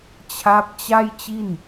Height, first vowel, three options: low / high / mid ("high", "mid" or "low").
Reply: low